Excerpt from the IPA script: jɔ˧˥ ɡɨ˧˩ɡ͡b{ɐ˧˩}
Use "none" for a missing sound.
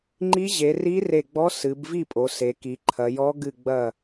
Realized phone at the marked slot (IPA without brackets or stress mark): ɐ˧˩